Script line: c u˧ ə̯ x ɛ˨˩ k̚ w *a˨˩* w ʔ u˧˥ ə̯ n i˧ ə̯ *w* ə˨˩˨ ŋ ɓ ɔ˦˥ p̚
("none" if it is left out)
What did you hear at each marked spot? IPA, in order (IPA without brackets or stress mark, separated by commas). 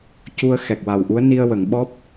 a˨˩, w